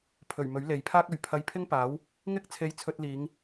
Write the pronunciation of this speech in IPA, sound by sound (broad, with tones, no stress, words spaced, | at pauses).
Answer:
pʰɵ˨˩ɥ mɵ˨˥ɥ le˨jpʰaː˥k̚ɵ˨ɥ pʰɐ˧jpʰɪ˥ŋpaː˨˥w | ŋɪ˥k̚t͡sʰe˧jt͡sʰɵ˧t̚liː˨˧ŋ